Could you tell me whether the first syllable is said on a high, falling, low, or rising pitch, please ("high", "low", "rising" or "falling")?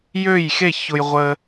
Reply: falling